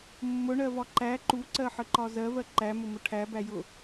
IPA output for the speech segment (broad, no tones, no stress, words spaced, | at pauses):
mːʊɳɜvɒ ǃæ ǃuǀɜħəǃɒ zɜvɜ ǃæmʊmʊ ʈʰæbæjʊ